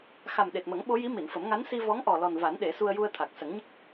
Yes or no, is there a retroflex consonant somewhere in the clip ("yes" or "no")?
no